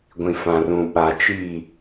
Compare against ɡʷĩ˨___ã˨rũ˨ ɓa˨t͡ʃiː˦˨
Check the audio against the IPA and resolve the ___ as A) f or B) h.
A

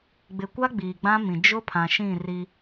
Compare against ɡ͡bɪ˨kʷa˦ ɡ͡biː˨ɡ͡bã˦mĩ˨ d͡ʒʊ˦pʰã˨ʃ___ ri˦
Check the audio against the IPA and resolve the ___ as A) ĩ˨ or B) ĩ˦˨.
B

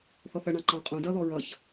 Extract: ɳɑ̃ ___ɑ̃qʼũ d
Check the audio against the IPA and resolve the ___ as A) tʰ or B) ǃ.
B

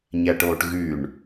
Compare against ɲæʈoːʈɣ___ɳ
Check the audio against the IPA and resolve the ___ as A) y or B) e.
A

